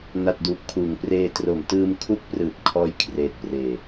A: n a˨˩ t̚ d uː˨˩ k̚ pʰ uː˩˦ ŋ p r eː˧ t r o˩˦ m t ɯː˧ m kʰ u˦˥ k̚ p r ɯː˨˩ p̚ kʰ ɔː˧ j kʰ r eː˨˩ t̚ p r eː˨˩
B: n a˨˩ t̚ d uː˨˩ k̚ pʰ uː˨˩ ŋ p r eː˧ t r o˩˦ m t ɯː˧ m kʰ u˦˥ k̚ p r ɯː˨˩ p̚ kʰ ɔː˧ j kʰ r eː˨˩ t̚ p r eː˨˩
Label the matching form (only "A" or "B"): A